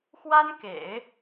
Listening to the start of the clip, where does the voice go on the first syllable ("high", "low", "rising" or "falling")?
high